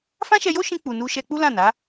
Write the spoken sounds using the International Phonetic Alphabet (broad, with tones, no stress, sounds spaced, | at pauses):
f ã˦ ʃ ɛ˧ j o˦ ʃ ĩ˧ k͡p u˨ n u˧ ʃ ɛ˧ k͡p u˦ l ã˦˨ n a˨˦